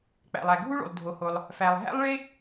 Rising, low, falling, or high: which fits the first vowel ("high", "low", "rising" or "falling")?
low